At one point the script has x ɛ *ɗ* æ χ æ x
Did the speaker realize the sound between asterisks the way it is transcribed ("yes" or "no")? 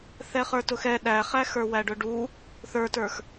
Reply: yes